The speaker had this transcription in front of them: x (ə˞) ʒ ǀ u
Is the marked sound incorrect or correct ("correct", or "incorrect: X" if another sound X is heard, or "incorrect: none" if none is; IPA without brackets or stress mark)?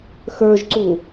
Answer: correct